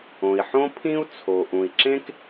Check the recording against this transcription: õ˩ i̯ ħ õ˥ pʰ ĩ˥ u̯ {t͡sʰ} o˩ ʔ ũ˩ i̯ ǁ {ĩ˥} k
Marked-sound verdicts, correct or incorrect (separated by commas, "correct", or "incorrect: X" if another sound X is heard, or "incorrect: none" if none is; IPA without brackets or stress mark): correct, incorrect: ẽ˥